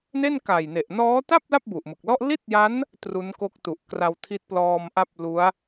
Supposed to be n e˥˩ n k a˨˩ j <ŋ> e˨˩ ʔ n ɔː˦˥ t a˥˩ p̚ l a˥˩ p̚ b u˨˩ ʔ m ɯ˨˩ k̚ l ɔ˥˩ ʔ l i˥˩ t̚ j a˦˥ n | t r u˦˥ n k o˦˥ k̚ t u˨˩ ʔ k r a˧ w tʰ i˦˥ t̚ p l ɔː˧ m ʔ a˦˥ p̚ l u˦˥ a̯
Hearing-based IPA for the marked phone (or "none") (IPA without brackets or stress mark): n